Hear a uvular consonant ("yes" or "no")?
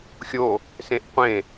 yes